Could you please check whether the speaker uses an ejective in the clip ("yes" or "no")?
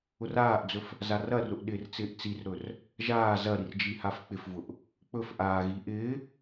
no